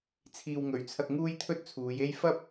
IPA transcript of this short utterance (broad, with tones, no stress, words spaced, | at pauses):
t͡sʰiː˨wŋɵ˨˩ɥt͡sʰɐ˧k̚ ŋuː˥jt̪ʰɵ˥t̚t͡sʰuː˨˧je˥j fɐ˥p̚